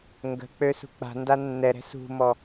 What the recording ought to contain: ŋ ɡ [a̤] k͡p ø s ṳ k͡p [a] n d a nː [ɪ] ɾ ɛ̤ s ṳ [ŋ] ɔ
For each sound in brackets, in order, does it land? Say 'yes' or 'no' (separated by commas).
no, no, no, no